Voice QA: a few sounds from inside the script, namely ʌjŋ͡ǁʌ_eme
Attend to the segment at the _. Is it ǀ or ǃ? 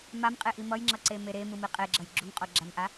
ǀ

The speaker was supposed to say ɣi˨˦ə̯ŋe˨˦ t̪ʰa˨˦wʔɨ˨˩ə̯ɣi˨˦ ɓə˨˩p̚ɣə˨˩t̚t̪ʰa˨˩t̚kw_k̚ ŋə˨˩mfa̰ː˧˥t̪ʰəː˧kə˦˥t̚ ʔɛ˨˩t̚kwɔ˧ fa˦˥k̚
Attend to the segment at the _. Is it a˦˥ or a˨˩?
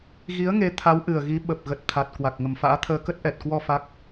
a˨˩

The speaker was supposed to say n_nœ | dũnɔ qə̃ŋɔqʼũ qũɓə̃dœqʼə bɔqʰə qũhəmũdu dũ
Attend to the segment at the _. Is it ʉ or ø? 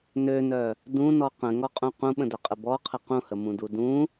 ø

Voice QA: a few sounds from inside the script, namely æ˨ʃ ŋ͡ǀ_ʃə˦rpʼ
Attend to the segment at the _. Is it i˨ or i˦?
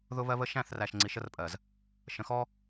i˨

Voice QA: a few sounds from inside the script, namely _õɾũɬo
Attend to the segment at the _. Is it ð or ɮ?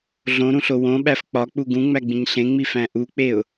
ɮ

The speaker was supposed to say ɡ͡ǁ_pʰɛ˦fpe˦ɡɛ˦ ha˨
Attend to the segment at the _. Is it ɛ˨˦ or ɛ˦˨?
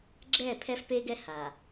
ɛ˦˨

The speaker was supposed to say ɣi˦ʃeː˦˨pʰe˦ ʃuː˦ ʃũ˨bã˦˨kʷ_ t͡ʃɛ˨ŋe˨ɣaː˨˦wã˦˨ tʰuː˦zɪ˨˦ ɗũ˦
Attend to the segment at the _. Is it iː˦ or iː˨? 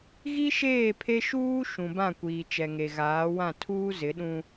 iː˨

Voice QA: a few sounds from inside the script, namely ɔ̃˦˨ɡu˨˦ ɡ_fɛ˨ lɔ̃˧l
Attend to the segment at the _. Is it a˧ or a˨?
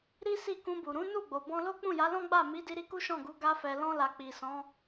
a˧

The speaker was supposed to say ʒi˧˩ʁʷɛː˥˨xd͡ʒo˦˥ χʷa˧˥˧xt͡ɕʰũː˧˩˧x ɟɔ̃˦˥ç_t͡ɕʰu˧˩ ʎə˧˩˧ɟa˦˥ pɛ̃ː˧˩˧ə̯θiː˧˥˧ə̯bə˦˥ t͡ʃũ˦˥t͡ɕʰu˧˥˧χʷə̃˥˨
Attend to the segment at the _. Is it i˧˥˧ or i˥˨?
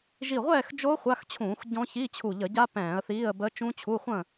i˧˥˧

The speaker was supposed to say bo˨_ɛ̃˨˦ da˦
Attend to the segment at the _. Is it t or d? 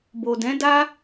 d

